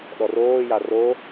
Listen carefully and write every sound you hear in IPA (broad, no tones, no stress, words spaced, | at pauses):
ɗɔroːja ro